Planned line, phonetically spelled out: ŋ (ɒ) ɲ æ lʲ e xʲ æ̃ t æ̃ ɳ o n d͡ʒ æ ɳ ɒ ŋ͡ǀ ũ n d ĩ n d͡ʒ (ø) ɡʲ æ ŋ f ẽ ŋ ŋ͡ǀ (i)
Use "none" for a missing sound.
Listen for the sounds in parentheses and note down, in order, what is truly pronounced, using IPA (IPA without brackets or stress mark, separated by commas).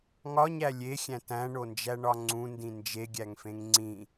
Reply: ɒ, e, ĩ